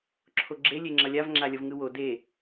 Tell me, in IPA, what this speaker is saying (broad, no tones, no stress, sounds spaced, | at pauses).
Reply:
ǁʰ o ɡ͡ǁ e lʲ e ŋ͡ǁ ʌ lʲ a v ŋ͡ǁ a lʲ ʌ v ŋ ɯ w o d e